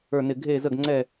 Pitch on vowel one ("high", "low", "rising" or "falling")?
falling